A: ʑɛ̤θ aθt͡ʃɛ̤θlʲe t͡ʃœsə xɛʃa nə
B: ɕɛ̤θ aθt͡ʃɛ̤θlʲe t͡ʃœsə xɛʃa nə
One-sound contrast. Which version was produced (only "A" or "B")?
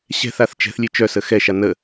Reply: B